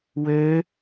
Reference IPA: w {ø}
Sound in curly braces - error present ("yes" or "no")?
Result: no